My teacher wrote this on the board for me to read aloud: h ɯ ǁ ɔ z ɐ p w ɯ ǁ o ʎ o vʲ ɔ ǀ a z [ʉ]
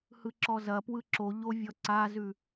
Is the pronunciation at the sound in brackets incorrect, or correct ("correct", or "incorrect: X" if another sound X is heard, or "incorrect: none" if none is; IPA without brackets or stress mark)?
correct